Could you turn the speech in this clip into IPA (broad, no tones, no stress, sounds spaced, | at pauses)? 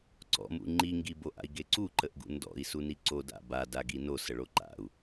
ǀ ɔ̰ m ṵ ŋ͡ǃ i ŋ ɡ i b o ʔ a̰ i̯ ɡ e ǀ u ǃ ə ʔ ɡ ṵ n d ɔ̰ i̯ s u n i ǀ o d a̰ b a d a ɡ i n o s ə ɭ o ǃ a̰ u̯